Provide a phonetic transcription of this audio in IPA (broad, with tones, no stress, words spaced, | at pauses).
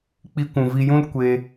k͡pi˧kʷũ˨vi˧jũ˦l kʷe˧